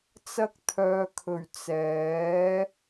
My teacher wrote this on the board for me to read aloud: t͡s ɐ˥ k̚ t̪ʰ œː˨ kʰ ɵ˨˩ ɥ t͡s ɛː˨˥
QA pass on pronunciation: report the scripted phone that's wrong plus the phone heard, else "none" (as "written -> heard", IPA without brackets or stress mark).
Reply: none